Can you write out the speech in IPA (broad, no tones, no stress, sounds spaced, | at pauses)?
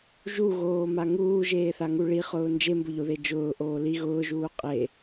ʒ u ɣ oː m a ŋ uː ʒ eː θ a ŋ u ɭ i χ ʊː n d͡ʒ e m b ʊ ʎ o ð e d͡ʒ ʊː ʔ oː l i ɣ ʊː ʒ uː qʼ e